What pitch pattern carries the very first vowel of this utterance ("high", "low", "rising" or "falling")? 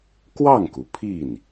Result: falling